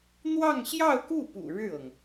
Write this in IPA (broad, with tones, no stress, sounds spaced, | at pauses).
n̪ w ɑ˥˧ ŋ ɕ j ɑ˥˧ ʊ̯ k u˥˩ p ṵ˨˩ ɻ ɻ̩˥˩ ɤ˩ ŋ